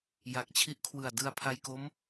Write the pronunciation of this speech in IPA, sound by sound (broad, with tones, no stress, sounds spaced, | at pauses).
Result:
j a˨˩ k̚ t͡ɕʰ i˦˥ ʔ kʰ w ɯ˨˩ a̯ d ɯ˧ a̯ pʰ a˧ j k o˦˥ m